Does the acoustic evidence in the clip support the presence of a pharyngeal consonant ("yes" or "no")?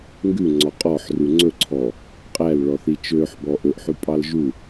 yes